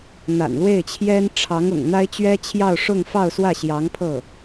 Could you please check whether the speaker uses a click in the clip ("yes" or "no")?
no